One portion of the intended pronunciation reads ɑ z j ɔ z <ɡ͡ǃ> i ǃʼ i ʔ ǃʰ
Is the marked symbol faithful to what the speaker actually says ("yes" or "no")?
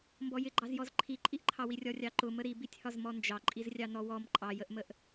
no